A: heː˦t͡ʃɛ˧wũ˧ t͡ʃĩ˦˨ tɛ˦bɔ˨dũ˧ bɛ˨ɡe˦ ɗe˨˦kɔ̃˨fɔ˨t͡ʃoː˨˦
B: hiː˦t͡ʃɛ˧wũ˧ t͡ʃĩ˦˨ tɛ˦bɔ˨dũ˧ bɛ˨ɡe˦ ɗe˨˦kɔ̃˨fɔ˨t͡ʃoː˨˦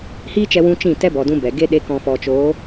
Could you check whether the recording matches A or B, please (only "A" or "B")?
B